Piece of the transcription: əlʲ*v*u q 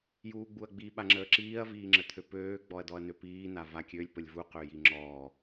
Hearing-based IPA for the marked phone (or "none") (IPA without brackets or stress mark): v